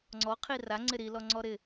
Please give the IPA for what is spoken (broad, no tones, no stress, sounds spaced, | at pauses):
ŋ͡ǀ ɔ qʰ i r a ŋ͡ǀ ɪ ɾ i l ɔ ŋ͡ǀ ɔ ɾ ɪ